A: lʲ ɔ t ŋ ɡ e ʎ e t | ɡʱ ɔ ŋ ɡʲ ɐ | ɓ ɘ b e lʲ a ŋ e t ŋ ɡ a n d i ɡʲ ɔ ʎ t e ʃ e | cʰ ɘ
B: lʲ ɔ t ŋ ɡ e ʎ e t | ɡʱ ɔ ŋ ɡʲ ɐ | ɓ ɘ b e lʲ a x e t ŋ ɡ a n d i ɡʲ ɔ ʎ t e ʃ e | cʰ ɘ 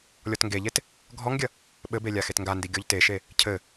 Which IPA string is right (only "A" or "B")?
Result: B